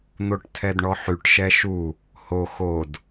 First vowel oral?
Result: yes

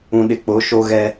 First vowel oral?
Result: no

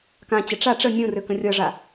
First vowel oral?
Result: no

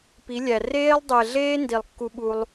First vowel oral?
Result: yes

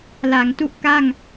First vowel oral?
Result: yes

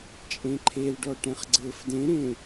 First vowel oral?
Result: no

